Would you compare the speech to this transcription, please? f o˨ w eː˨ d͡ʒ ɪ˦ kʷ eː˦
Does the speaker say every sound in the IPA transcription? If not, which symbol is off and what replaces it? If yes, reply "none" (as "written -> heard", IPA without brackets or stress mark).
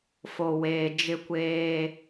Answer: none